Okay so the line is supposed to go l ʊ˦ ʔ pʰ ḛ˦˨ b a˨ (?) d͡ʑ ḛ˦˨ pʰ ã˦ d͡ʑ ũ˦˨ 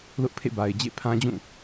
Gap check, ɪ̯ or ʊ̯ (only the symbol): ɪ̯